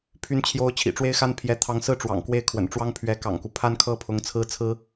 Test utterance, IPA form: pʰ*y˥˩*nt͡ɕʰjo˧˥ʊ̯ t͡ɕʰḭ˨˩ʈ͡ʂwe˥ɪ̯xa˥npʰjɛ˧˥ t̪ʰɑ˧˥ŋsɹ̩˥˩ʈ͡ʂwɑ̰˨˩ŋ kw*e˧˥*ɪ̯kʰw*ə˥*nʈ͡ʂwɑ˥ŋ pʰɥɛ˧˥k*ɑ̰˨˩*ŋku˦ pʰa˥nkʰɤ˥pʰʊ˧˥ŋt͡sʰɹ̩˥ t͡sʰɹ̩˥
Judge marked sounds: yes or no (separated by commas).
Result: no, no, no, yes